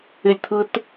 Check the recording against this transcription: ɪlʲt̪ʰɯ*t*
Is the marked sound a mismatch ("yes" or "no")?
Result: no